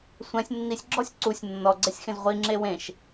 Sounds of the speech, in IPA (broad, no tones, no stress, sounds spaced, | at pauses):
sʷ ɛ̃ sʲ nː i sʲ ɡ͡ǁ ɔ sʲ ǀ u sʲ nː ɔ ɡ͡ǀ ɛ sʲ x ẽ z ʁʷ i ŋ͡ǁ e w ẽ ʃ